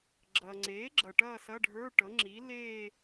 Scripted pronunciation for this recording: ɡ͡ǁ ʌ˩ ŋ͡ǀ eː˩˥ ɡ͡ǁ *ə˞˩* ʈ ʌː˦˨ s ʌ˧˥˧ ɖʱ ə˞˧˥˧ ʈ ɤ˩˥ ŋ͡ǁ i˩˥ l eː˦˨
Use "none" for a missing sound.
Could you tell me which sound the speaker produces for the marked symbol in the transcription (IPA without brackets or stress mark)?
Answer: ʌ˩